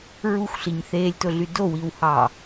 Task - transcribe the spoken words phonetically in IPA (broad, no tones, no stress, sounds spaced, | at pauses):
ɹ u xʷ ɬ i ɲ θ eː lʲ t o ɮ y d o w i w h ɑː